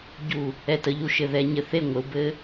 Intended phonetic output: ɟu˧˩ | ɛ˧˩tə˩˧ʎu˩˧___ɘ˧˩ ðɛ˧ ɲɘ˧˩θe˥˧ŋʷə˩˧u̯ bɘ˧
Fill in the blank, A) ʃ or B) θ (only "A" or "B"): A